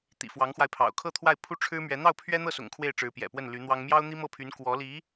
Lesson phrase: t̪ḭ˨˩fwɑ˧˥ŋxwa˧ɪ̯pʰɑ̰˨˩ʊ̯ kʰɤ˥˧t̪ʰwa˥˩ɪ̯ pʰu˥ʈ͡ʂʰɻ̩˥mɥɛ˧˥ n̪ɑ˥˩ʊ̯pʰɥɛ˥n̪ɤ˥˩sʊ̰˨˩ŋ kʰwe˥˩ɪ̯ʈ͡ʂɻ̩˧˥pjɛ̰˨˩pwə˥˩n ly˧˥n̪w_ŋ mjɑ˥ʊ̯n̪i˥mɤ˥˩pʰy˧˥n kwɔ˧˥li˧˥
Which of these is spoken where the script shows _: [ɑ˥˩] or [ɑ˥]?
ɑ˥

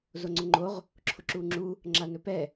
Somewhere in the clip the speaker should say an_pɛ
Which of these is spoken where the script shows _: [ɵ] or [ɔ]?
ɵ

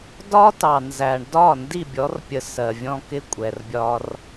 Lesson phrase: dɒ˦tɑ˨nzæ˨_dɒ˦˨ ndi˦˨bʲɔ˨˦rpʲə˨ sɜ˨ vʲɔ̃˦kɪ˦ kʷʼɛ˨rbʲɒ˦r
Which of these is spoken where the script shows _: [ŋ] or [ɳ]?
ɳ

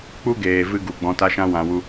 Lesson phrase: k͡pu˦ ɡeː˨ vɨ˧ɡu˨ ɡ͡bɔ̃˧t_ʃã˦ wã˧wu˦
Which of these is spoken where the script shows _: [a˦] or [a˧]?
a˦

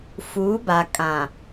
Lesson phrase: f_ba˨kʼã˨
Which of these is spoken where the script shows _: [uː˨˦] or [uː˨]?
uː˨˦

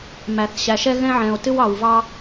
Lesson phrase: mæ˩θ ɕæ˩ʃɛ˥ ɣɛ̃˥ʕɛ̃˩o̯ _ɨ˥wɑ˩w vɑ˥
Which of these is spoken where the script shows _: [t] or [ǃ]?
t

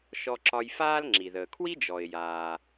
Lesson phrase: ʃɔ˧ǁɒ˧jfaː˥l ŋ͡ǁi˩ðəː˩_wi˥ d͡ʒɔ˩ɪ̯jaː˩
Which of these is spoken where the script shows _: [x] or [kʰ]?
kʰ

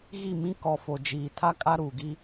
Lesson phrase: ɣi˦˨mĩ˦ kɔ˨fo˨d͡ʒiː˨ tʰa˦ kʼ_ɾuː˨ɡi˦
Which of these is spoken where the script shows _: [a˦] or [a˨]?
a˦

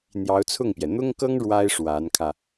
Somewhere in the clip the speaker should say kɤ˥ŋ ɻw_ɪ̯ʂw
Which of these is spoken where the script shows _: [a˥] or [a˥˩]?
a˥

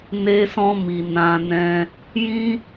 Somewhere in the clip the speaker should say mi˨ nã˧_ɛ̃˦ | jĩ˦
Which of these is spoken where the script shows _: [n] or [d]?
n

